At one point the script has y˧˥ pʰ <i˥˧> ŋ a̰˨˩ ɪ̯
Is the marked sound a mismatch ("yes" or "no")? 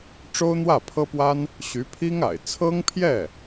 yes